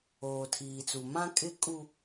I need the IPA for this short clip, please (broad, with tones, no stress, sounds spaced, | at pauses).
oː˨ tʰ iː˨ t͡s u˨ m ã˦ kʼ ɪ˦ kʼ u˦